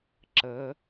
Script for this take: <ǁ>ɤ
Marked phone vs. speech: correct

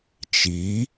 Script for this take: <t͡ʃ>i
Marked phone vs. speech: correct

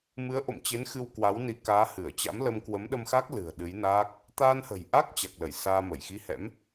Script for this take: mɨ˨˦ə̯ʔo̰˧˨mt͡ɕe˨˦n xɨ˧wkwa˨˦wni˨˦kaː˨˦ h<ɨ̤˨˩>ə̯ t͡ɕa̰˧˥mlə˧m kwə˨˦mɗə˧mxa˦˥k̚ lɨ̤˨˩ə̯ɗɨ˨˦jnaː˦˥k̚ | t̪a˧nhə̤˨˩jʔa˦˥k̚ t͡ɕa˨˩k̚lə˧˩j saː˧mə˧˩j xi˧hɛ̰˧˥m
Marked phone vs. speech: incorrect: ɨ˧˩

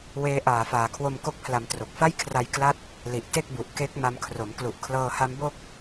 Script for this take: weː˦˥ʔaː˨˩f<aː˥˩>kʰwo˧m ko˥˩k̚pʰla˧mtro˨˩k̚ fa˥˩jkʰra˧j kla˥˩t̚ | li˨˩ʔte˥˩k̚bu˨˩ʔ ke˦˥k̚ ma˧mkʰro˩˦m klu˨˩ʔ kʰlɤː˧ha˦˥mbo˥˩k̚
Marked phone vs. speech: incorrect: aː˨˩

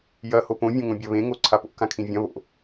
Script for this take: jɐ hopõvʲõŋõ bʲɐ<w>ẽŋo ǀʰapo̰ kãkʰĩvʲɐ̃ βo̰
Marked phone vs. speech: incorrect: β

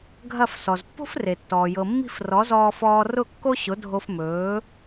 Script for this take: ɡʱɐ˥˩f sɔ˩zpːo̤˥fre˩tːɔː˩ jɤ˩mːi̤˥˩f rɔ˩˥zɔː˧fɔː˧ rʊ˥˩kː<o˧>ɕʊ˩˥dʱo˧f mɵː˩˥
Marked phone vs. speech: incorrect: o˥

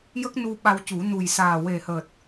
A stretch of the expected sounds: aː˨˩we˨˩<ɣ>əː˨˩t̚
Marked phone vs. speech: incorrect: h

